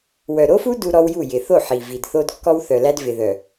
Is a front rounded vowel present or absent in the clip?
present